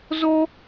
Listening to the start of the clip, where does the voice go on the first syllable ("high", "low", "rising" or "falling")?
high